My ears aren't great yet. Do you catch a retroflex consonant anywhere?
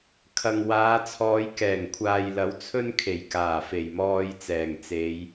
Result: no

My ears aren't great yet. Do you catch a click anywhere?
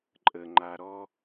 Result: yes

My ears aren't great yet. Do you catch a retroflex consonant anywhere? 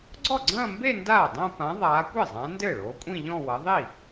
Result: yes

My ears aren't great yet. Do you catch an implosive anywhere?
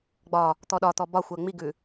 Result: yes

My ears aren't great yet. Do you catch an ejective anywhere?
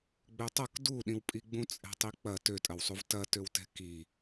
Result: yes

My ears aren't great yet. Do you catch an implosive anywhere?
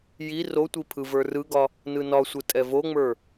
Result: no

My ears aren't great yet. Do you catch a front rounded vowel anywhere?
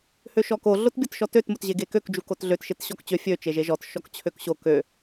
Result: yes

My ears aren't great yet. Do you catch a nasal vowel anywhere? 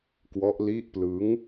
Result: no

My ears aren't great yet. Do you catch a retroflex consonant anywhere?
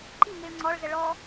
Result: yes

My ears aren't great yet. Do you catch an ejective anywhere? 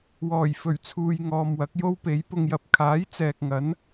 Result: no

